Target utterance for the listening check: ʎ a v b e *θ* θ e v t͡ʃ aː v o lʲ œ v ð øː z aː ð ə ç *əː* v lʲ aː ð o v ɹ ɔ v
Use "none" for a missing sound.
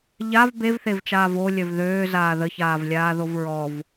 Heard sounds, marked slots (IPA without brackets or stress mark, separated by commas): v, aː